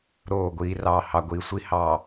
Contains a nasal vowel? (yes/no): no